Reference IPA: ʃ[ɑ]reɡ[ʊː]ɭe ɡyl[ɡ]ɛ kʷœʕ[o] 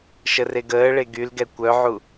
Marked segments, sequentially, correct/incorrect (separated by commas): incorrect, incorrect, correct, incorrect